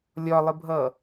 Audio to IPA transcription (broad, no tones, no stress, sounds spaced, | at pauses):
lʲ ɒ lˠ ɪ bʱ ʌ